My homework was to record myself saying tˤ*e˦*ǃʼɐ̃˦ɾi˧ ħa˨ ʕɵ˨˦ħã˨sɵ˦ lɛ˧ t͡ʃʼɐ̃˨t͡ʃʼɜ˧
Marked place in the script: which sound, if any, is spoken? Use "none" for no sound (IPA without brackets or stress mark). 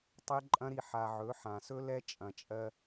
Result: e˦